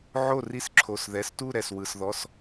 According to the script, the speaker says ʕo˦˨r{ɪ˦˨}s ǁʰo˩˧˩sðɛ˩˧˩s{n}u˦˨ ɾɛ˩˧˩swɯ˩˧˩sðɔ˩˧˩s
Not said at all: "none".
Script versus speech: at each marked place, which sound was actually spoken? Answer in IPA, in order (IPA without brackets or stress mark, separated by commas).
i˦˨, t